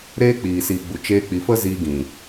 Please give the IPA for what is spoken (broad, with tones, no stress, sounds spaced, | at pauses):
ɾ eː˦ k͡p iː˨ s iː˨ ɡ͡b u˨ t͡ʃ eː˧ k͡p i˨ f ə˦ z iː˧ ɡ ĩ˨